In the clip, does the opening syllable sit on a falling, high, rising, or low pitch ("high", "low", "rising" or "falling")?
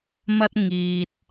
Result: high